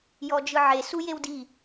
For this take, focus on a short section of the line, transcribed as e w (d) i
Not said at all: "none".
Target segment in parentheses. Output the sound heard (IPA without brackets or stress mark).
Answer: d